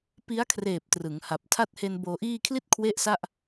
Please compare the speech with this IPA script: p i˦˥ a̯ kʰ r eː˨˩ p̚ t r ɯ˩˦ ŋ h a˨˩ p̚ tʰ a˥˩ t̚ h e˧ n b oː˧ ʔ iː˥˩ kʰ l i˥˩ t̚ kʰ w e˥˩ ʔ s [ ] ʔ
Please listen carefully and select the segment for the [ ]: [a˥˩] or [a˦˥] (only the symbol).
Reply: a˥˩